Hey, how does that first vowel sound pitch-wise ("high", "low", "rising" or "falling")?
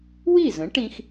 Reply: falling